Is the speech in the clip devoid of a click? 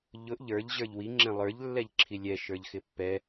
no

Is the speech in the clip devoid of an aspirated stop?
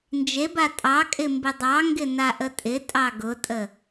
yes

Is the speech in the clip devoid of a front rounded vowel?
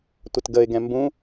yes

